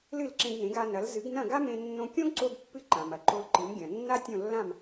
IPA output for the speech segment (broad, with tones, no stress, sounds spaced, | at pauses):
l ɨ˥˩ l ǁ ẽ˧ ɡ n ẽ˩˥ ɡ a˧ n ɐ˩˥ l z ɨ˩˥ ɡ n ɐ̃˥˩ ɡ a˥ m ẽ˧ nː õ˧ kʲ õ˥ ɡ ǀ o˧ ɡ pː ɨ˧ ǃ ã˩ m ɐ˩ ǃ o˧ l ǃ ɨ˩˥ m ɡʲ ɐ̃˩ nː a˥ tʲ õ˥˩ lː ã˥˩ m